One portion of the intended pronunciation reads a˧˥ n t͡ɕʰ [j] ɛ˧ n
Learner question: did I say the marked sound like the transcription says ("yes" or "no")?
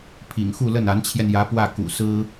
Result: yes